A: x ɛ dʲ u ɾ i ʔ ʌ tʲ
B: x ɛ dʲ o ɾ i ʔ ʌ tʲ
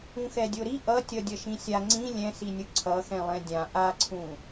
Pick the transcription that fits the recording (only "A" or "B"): B